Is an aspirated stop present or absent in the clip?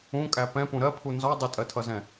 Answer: present